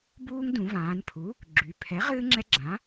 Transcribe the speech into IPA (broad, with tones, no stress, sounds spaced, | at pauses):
b uː˦ ŋ d ũ˩˧ v ãː˩˧ n pʰ u˩˥ | ɡ͡ǁ y˩˧ pʰ ɛ˩˥ ʁ ɨː˦ ŋ͡ǁ ɛ˦ ɡ͡ǁ ã˩˥